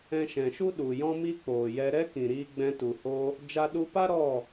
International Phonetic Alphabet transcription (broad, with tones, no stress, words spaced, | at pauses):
ɛ̃˧ʃɛ̃˨ʃu˦ ɗu˨jɔ̃˦ mi˦k͡poː˨jɛ˧ ɾɛ˦kĩ˨ ɾiː˧ɡ͡bɛ̃˧tu˨ho˧ | d͡ʒa˧ɗu˧pa˦ ɾɔ˦˨